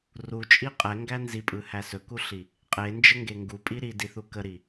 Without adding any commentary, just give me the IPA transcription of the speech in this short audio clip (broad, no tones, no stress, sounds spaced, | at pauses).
r u t͡ʃʼ i qʼ ɛ ŋ ɡ æ n z i pʼ ɯ h æ s ɵ k u ɬ i | qʼ e n d͡ʒ ə ŋ ɡ e ŋ ɡ u pʼ i ɾ i d i θ u k ə ɾ i